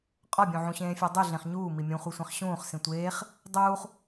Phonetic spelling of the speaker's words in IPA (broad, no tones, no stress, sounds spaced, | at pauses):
qʼ ɒ bʲ ũ ʕ ũ ɕ ẽː fʲ æ dˤ u ɮ ẽ χ ɲ uː m i mʲ ũ χʷ i sʷ ẽ χ ɕ ũː χ s ĩ tʷ eː χ | dˤ uː χ